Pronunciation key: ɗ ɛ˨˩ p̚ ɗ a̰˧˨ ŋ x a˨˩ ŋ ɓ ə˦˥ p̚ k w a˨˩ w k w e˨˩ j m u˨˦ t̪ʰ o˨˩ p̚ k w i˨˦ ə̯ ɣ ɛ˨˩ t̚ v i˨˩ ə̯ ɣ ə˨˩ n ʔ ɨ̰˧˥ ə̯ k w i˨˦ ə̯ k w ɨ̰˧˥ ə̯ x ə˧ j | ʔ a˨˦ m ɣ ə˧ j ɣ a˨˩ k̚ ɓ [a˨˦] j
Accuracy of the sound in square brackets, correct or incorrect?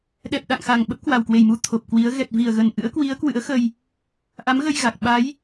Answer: correct